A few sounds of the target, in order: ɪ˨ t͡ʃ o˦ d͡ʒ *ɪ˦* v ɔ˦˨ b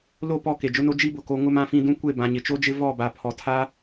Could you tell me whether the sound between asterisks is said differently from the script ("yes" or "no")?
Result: no